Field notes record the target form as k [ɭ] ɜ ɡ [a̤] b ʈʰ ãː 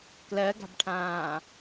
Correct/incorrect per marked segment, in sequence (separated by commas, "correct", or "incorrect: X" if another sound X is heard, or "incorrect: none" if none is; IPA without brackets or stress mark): incorrect: l, correct